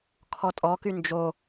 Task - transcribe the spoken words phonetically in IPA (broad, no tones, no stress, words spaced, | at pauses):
kʰɔtʼɔky nd͡ʒo